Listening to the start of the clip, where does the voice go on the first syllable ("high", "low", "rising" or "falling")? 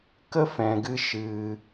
high